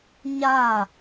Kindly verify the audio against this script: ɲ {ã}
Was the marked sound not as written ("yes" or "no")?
yes